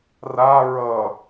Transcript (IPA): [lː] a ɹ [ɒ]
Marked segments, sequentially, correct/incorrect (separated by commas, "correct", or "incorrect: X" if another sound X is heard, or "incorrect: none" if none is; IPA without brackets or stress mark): incorrect: r, incorrect: ʌ